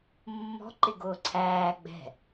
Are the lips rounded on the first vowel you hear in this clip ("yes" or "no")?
yes